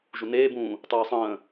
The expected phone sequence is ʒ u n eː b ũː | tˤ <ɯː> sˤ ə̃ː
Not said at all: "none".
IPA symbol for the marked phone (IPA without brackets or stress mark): ɯː